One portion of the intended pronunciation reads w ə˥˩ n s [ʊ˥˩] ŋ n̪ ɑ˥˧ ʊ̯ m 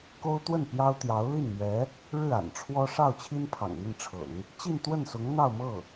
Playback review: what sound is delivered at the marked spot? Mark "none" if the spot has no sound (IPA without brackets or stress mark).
ʊ˧˥